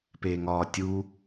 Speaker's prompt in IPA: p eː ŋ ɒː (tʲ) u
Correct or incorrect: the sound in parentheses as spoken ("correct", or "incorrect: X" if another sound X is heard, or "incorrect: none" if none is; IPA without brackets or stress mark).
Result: correct